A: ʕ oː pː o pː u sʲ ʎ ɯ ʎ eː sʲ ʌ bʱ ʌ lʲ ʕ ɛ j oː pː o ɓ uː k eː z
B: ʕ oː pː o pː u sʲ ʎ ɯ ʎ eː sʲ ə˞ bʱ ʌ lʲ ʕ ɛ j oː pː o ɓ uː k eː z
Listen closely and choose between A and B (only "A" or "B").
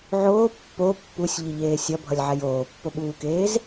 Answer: A